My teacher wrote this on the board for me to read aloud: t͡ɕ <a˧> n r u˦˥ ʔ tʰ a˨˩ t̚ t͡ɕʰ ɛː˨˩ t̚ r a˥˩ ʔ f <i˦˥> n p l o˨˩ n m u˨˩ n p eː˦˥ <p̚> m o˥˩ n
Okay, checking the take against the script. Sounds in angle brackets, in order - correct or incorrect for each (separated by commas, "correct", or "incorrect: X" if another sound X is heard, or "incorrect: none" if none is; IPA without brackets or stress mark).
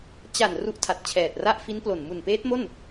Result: incorrect: a˨˩, correct, incorrect: t̚